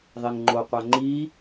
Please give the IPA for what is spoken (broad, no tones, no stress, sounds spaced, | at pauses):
ðˤ e ŋ ŋ͡ǃ o qʷ æ ŋ͡ǃ i